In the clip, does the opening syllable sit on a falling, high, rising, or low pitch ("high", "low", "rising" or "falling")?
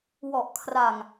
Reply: low